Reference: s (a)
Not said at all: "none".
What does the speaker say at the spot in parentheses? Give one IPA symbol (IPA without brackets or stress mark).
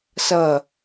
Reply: ʌ